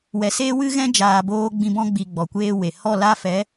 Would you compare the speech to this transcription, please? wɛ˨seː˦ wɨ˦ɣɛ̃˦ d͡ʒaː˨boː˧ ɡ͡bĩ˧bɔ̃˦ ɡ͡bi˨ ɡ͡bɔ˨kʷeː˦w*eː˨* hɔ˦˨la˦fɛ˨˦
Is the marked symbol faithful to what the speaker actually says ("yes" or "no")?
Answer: no